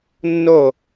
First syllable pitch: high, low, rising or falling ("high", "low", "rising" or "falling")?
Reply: falling